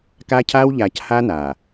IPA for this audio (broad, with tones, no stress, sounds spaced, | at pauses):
k a˦ cʰ aː˦ w ʎ aː˨ c h aː˦ n aː˨